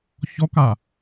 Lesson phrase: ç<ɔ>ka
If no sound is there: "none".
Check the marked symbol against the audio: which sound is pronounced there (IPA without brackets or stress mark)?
ɔ